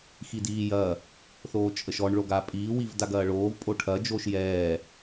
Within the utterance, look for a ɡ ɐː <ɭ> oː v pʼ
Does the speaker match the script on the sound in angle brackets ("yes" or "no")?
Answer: yes